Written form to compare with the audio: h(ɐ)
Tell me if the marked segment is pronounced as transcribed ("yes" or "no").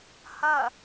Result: yes